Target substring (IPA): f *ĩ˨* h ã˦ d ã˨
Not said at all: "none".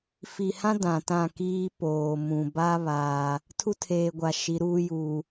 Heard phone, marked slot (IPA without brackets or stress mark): i˨